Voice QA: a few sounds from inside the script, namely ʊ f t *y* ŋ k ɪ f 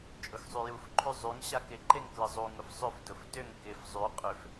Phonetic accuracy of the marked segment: incorrect: ʏ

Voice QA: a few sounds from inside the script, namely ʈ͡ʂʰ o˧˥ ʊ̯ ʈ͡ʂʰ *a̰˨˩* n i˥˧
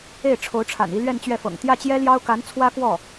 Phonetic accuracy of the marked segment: correct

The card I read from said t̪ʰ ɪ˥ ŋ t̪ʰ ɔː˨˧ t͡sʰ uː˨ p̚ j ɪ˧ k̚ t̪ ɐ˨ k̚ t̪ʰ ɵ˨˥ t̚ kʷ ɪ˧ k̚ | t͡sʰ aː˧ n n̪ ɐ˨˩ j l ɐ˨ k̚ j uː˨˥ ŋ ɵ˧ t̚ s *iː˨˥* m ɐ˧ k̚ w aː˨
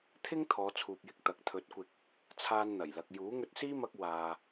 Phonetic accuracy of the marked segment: incorrect: iː˥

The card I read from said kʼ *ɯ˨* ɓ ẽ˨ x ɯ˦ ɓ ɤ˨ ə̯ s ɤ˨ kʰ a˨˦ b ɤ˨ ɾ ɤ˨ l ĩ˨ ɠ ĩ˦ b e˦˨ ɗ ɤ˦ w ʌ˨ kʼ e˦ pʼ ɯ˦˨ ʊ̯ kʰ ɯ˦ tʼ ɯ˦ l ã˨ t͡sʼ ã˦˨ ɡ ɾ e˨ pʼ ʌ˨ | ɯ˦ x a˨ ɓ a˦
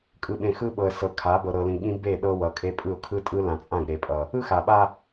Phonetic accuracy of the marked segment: correct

